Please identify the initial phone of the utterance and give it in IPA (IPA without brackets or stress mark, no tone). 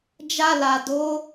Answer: d͡ʒ